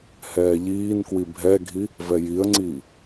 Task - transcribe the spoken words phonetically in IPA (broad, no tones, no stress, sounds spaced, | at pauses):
h ɛː ʎ iː n k w i bʱ ɛ ɡʱ i | v ɛ j i ə̯ ŋ͡ǀ iː